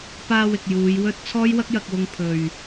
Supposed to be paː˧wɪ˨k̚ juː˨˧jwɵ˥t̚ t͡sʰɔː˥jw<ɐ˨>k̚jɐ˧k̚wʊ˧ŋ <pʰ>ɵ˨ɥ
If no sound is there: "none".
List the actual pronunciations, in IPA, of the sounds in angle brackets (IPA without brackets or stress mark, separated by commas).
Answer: ɐ˥, pʰ